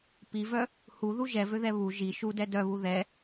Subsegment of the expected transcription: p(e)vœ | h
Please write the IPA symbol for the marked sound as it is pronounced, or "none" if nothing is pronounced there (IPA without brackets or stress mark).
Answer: i